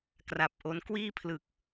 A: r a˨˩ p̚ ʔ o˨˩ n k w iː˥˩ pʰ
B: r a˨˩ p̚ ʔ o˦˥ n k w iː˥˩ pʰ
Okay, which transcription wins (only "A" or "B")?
B